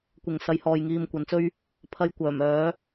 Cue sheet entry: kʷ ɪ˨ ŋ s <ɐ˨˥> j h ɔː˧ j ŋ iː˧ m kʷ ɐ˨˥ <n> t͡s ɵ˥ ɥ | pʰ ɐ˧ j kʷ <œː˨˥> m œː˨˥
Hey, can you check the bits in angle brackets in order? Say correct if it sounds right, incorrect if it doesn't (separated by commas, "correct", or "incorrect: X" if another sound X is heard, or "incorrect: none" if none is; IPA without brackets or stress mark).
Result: correct, correct, incorrect: œː˨˩